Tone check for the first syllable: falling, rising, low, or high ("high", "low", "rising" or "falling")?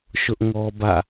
high